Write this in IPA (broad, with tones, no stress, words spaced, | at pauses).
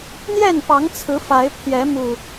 n̪jɛ˥˨npɑ˨˦ŋt͡sʰɹ̩˨˦ fa˨˦ɪ̯pʰjɛ˨˦mu˨˩